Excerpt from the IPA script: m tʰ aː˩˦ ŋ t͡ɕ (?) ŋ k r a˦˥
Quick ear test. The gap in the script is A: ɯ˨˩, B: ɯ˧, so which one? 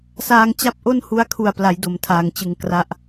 A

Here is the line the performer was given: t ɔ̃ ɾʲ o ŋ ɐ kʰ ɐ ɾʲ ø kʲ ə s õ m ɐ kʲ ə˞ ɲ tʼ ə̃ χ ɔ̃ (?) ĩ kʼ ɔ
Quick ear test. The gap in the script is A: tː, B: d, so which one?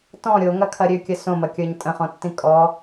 A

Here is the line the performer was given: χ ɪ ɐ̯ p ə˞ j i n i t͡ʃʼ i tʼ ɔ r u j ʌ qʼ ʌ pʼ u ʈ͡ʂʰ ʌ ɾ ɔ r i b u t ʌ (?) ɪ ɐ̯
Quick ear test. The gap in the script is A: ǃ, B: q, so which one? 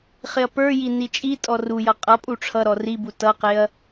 B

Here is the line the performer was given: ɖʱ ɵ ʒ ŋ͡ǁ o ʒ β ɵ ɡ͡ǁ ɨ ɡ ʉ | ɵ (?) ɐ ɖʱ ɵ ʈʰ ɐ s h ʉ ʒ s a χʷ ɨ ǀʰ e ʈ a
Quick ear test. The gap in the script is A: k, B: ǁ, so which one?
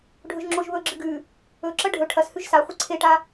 B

